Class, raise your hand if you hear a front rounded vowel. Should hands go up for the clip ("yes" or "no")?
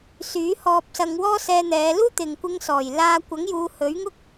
yes